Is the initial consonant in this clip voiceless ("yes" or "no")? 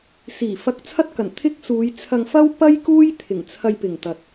yes